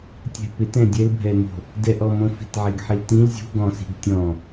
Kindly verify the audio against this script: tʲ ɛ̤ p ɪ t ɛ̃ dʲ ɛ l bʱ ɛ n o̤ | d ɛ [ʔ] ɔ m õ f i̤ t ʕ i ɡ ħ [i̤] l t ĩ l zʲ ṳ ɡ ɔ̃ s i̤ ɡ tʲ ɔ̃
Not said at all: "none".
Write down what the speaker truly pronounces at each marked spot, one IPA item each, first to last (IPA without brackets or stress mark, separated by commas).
ʔ, i